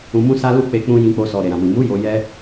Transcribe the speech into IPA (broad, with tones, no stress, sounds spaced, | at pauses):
ũ˧ m ũ˦ s a˦ l u˦ k͡p e˦ k͡p ũ˦ j ĩ˧ k͡p o˧ s ɔ˨ ɾ e˨ ɾ ã˨ m ĩ˨ m u˨˦ j o˧ j ɛ˦